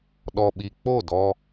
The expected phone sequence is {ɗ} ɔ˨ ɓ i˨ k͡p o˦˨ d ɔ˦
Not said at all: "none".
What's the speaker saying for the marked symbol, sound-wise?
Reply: ɗ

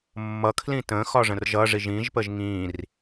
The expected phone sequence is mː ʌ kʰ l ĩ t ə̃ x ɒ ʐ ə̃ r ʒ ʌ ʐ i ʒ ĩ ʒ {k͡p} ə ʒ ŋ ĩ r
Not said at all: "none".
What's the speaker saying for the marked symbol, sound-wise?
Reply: p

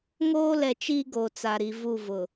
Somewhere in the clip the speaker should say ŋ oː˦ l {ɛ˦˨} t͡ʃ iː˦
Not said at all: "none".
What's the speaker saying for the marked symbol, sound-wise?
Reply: ɛ˨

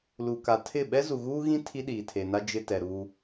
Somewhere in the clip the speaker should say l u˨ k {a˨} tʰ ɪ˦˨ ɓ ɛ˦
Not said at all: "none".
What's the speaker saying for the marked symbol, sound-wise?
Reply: a˨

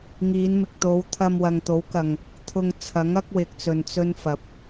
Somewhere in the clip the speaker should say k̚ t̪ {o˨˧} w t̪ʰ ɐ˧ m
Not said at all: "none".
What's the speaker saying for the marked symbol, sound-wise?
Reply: o˨˧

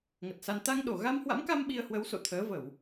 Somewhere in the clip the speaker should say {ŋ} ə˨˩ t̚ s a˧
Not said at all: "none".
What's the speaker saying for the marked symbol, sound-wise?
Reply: ŋ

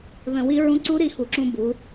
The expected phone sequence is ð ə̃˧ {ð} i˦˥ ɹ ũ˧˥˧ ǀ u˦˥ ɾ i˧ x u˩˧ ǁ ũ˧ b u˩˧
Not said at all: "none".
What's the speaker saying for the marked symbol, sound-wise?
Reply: w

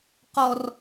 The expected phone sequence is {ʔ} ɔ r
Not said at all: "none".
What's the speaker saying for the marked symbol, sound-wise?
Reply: q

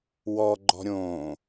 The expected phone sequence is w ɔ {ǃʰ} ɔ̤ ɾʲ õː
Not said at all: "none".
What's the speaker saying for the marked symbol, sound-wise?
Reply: ɡ͡ǃ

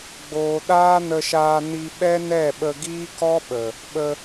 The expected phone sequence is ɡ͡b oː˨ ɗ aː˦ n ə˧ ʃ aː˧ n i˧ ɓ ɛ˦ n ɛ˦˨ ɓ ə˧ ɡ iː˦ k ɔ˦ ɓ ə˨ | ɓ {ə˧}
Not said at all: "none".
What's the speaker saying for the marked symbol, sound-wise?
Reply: ə˧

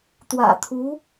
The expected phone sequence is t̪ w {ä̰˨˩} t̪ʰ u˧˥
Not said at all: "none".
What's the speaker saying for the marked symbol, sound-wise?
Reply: ä̰˨˩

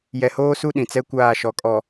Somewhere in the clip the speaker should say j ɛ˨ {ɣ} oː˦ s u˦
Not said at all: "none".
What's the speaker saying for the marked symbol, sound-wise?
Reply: h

